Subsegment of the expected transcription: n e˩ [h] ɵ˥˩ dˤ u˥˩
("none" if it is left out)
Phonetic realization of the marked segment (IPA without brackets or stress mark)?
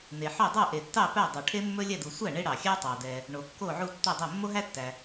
ħ